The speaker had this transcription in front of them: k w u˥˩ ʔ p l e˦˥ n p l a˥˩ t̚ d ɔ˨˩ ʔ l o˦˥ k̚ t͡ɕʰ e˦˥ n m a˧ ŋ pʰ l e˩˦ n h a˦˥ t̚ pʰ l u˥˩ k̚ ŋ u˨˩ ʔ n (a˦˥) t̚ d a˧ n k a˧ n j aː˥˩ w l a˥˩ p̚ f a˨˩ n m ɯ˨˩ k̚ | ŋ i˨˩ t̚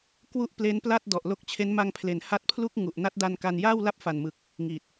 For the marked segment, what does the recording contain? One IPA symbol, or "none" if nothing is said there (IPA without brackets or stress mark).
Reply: a˦˥